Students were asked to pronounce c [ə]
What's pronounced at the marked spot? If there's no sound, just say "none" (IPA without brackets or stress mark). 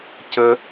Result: ə